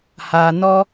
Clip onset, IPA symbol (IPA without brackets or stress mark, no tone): h